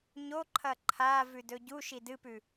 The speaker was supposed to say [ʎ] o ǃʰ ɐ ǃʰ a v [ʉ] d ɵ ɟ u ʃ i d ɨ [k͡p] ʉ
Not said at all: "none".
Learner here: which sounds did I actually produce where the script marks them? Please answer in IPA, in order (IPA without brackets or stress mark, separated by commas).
ɲ, ʉ, p